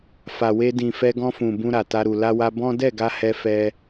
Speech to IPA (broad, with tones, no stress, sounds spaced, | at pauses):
f a˨ w e˧ d ĩ˨ f ɛ˧ ɡ ɔ̃˧ f ũ˨ b ũ˧ ɾ a˨ t a˧ ɾ u˨ l a˧ w a˧ b ɔ̃˦ d ɛ˦˨ ɡ a˧ h ɛ˧ f ɛ˦